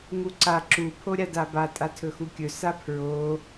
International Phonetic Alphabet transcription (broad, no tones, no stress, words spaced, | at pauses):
ŋuǀa ǁu pʰoɾʲadaba tʼatʰɵxukʲɵ sapʰɹo